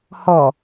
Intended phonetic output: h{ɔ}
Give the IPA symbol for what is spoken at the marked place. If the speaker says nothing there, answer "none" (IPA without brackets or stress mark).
ɔ